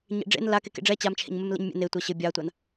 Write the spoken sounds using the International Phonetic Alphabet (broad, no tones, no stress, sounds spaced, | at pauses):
ɲ ḛ ɖ͡ʐ ḛ n l a k e k ḛ ɖ͡ʐ ɛ t͡ɕ a m t͡ʃʰ ḛ ɲ m ɛ m l ḛ ɲ mʲ ḛ n e tʷ ɐ ɕ ɘ bʲ a tʷ a n